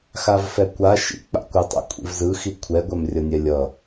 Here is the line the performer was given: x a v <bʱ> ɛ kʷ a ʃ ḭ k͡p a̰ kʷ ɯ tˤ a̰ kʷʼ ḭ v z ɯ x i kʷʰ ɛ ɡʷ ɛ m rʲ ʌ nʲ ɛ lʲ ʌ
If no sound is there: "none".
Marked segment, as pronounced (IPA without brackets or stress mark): f